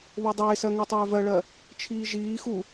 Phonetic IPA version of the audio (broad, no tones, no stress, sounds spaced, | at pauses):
β o dˤ eː s ɜ ŋ o tˤ øː v ɜ ɭ ɜ | t͡ʃʰ iː ʒ iː x u